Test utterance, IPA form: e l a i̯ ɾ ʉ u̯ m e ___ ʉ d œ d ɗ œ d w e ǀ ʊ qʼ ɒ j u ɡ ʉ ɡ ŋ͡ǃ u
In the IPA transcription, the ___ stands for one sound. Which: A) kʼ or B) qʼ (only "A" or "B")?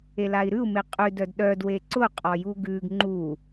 B